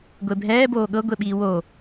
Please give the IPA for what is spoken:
ɡʷebʱɛːboː ɠɤ ɡʷeɓiːwo

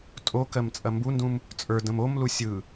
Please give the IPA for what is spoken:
tʼokɜm t͡sʼɐmbundũm | t͡sʼə˞ də̃momlu sʲɯ

